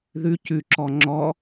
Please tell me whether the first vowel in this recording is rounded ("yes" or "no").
yes